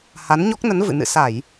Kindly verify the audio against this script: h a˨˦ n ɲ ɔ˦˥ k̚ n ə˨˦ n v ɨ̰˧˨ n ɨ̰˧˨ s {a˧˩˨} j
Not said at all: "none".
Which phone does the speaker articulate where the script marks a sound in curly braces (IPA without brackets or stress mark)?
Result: a˧˩˨